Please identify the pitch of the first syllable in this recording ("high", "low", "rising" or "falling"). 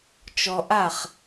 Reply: low